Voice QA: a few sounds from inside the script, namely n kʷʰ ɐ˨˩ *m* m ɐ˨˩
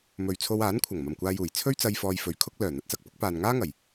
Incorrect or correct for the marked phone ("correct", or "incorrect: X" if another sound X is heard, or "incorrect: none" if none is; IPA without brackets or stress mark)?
incorrect: ŋ